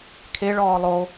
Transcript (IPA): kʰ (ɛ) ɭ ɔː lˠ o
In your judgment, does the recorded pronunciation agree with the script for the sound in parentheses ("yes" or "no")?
no